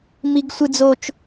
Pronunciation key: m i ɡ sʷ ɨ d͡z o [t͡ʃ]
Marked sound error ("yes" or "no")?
no